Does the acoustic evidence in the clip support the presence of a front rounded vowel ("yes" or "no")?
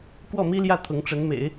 no